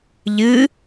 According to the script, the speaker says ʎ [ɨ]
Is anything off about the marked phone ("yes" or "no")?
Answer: no